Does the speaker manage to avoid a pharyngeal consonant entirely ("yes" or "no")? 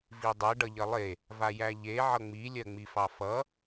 no